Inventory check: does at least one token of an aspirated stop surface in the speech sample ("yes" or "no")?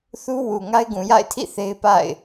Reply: yes